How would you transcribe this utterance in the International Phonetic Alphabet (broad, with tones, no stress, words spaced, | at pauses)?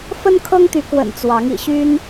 fə˦nkʰɤ˦ŋt̪y˨˦kwə̰˨˩n t͡swɑ˨˦ŋḭ˨˩ɕy˦n